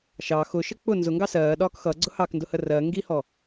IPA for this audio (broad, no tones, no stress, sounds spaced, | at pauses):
ʃ ɑ x ʊ ʃ ə k͡p ʊ n z ʊ ŋ ɡ ɑ s ɜː ɗ ɒː k x ʌ ɡ͡ǀ ʊ h ɑ k n d ʊ h ə r ɜ ŋ ɡ i h ɔ